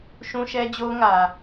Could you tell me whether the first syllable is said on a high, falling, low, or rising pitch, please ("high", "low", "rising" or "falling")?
high